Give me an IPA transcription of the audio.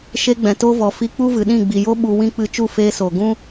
ʃ e˧ ɡ͡b ɛ̃˨ t o˦ v ɔ˨ f i˧ k͡p u˦ v ɨ˨ ɗ ĩ˦˨ ɡ͡b i˨ j o˦ ɓ u˧ w ĩ˦ k͡p ɨ˧ t͡ʃ u˦˨ f eː˧ s oː˨ ɡ ũ˧

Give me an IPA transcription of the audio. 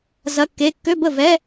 z ɐ˧˥˧ kː e˧˥˧ kː ø˧˥˧ b ə˥˩ v ɛ˧˥˧

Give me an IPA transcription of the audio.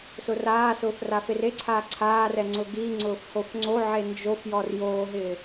s ʊ r aː s ʊː f r a f e r e ǀʰ aː ǀʰ aː r ɛ ŋ͡ǀ ʊ ɡ i ŋ͡ǀ ʊː f h o f ŋ͡ǀ o ʕ e n d͡ʒ o f j ɔ r j oː ɦ ɪː

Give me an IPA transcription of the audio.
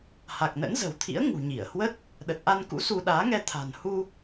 h a˨˩ k̚ n ə̰˧˥ n z ə̤˨˩ w t̪ʰ ḭ˧˥ ə̯ ŋ ṳ˨˩ ɲ i˧˩ ə̯ h w ə˦˥ t̚ | ɗ ə˨˩ t̚ ʔ a˧ n k ṵ˧˥ s u˧ ɗ aː˨˦ ŋ ɛ˧ t̪ʰ a̤˨˩ n h u˧

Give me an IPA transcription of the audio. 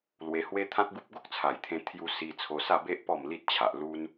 l w e˧ h w e˦ t̪ʰ ã˦ t̚ ɡ u˦ p̚ ɡ o˦ k̚ t͡sʰ a˨˩ j t̪ʰ ẽ˧ t̪ʰ j u˧ s i˧ t͡sʰ o˧ s a˥˧ b e˦ ʔ p ɔ˥˧ m l i˦ t̚ t͡ɕʰ a˨ ʔ l u˦ n

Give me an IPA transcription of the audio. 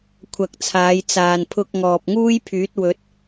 kʷʰ ɐ˨ k̚ t͡sʰ aː˨˧ j t͡s aː˨ n pʰ ʊ˧ k̚ ŋ ɔː˨ p̚ ŋ uː˥ j pʰ yː˨˥ t̚ w ɵ˨˥ t̚

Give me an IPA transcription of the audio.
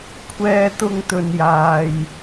kʷʰ ɛː˥ t̪ ʊ˥ ŋ t̪ ɵ˧ n j aː˧ j

